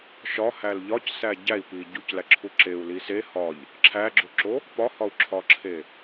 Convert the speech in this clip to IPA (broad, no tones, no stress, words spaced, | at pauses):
ʃɒhæl ʎɒcsæ ɟæi̯pi ɟuclæǁʰu ǁeu̯li se hɒʎ | ǁʰæɡ͡ǁoǁo | pɒhɒu̯ǁʰɒǁʰe